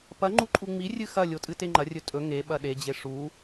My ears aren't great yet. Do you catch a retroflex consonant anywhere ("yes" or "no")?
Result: yes